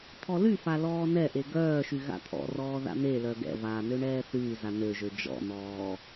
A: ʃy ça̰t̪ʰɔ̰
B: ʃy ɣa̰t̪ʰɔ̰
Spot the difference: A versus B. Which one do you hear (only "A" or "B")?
B